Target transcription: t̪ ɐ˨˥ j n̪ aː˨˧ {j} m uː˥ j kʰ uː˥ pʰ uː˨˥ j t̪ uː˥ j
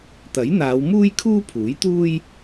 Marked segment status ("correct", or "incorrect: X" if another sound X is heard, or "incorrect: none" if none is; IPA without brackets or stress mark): incorrect: w